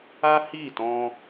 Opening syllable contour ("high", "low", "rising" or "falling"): high